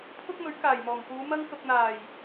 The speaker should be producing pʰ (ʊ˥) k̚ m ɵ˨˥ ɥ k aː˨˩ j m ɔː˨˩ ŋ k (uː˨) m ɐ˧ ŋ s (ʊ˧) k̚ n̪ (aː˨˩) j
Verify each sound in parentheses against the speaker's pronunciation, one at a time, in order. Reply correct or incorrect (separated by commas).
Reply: correct, incorrect, incorrect, correct